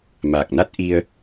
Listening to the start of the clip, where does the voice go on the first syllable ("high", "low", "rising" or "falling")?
low